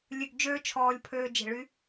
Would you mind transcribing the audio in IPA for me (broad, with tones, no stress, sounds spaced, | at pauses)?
lʲ ø˧ ɡ d͡ʒ øː˦ t͡ʃʰ ɔː˧ lʲ pʰ øː˧ d͡ʒ e̤˨ ɭ y˧